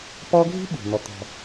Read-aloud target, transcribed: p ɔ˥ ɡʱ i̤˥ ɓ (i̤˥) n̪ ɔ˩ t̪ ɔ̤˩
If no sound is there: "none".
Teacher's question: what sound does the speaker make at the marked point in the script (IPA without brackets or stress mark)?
i̤˩